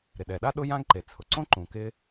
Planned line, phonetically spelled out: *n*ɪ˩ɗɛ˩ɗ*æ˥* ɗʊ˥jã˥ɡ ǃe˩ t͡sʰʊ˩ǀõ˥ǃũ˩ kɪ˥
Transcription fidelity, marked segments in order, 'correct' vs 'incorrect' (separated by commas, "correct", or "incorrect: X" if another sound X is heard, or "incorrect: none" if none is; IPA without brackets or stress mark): incorrect: ɾ, incorrect: a˥